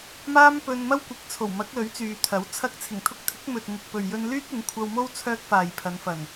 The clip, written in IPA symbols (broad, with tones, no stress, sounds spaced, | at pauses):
m aː˥ m p ɵ˧ n m ɐ˥ w kʷ ɪ˨˥ k̚ t͡sʰ o˨˩ w m ɐ˨˥ k̚ l ɵ˨˥ ɥ t͡s yː˨ t̪ʰ ɐ˨˥ w t͡sʰ ɐ˥ k̚ t͡sʰ ɪ˨˩ ŋ t̪ʰ ʊ˧ k̚ t̪ʰ ɪ˨˥ k̚ m ɵ˨ t̚ ŋ ɪ˨ k̚ p ɵ˨ ɥ j ɵ˧ n l yː˥ t̚ ɪ˨˥ ŋ kʷʰ ɐ˧ w m o˥ w t͡sʰ œː˥ k̚ f aː˨ j pʰ ɐ˨˧ n f ɐ˨˩ n